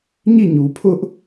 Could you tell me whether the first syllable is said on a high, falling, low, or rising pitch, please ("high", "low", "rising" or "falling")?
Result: falling